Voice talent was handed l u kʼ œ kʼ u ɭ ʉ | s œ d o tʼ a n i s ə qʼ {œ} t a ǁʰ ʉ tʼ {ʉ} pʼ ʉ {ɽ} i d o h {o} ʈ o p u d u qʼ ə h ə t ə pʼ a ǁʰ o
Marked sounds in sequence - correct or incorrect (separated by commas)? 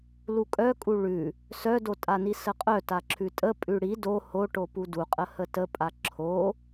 correct, incorrect, correct, correct